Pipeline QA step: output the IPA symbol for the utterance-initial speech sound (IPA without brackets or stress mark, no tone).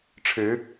ʈ͡ʂʰ